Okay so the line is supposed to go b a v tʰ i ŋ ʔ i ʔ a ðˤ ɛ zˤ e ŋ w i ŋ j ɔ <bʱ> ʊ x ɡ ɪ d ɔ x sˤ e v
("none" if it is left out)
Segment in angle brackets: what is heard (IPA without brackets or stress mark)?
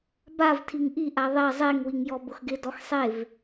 b